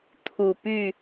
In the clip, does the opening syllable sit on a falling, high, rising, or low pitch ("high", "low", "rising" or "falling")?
low